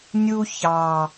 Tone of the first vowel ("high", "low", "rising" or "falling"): high